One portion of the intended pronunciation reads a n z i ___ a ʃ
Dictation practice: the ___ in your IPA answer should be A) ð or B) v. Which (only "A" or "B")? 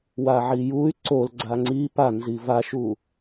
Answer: B